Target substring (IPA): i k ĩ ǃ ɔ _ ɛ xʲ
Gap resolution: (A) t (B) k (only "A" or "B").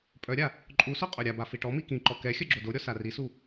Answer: B